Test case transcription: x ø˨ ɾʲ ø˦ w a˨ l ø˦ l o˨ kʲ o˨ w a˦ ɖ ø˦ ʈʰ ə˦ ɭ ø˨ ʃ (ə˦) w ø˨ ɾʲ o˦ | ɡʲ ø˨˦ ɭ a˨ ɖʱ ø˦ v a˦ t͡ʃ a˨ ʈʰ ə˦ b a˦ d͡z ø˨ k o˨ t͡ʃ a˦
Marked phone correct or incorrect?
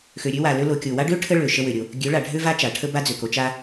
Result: correct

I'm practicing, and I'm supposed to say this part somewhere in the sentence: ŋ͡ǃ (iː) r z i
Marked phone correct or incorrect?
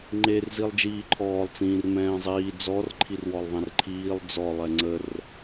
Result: incorrect: eː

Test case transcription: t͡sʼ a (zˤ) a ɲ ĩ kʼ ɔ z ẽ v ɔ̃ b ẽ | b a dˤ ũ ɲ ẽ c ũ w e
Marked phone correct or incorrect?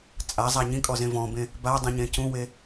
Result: correct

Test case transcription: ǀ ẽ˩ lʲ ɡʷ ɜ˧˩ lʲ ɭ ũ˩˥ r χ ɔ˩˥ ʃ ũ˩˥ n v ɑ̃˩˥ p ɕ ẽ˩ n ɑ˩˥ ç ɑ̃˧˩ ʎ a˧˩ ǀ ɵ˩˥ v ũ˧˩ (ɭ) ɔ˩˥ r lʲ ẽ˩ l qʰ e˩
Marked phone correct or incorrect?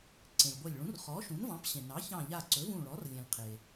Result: correct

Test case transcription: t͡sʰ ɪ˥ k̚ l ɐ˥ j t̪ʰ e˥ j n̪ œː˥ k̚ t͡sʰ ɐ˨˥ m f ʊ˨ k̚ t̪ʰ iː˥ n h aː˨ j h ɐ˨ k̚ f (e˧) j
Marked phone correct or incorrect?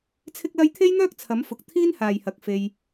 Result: correct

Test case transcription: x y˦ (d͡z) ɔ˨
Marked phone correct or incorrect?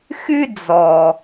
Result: correct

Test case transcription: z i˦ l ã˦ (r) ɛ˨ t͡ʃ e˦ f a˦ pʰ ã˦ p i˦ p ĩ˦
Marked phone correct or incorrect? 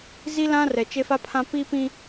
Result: correct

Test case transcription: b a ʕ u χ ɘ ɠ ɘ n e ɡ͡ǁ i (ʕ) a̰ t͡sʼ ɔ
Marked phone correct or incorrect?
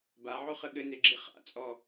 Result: incorrect: χ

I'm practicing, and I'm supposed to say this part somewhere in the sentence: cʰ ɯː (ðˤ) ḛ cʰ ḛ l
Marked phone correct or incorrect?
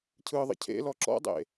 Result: correct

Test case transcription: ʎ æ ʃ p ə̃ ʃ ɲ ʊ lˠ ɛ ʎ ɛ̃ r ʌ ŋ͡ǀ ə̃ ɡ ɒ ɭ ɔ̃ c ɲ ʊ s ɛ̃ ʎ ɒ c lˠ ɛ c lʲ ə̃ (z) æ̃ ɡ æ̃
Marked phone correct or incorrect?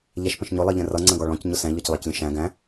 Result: incorrect: ʃ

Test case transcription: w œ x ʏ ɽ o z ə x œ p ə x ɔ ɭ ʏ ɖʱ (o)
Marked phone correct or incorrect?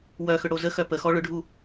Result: incorrect: u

